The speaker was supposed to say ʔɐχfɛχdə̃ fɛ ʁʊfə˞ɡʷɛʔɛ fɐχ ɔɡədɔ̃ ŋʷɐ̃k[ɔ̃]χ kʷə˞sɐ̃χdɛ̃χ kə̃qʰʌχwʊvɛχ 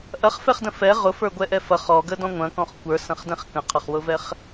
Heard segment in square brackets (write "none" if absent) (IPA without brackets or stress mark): ɔ̃